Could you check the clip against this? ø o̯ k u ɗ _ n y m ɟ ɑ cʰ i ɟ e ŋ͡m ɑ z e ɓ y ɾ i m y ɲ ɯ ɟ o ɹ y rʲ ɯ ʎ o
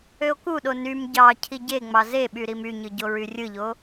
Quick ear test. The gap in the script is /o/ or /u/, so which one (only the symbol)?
o